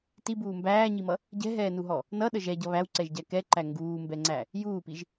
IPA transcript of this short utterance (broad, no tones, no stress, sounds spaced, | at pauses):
t i b uː m b æː ɲ i m ʌ | ɟ ɛ̤ ɦ ɛː n u ɦ ɔ | n ʌ ɗ ə ʒ ɛ ɟ ʌ β æ w ǀ ɛ ʒ ɟ æ k ɛ ǃ æ ŋ ɡ uː m b ɛ ŋ͡ǀ æ | j uː p i ʒ